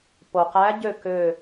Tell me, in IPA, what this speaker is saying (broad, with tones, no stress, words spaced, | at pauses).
po˩qæ˧˥ ɟø˦˨ kø˦˨